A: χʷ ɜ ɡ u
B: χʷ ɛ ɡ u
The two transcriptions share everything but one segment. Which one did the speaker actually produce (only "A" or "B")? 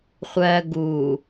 A